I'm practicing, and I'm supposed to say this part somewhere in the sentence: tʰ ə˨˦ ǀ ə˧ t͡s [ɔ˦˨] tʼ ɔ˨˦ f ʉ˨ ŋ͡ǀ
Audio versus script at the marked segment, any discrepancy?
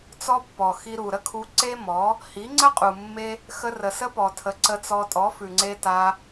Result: yes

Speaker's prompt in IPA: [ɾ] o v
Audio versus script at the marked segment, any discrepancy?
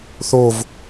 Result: yes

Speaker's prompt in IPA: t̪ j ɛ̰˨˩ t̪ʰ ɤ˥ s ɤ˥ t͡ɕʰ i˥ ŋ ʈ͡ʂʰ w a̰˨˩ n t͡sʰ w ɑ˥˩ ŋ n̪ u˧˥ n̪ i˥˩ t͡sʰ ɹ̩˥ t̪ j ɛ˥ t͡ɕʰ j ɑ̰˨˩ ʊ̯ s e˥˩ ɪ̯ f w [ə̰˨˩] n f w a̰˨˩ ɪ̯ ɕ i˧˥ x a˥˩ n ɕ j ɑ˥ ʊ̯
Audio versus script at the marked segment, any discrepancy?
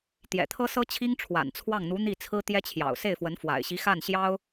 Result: yes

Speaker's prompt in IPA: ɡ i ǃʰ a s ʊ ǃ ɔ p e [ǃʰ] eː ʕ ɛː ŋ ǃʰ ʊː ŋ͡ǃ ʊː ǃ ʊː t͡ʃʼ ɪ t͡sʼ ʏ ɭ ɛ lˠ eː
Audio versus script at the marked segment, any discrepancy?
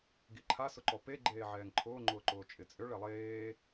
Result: yes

